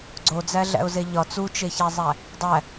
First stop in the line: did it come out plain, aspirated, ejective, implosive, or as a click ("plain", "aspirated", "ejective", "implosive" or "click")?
click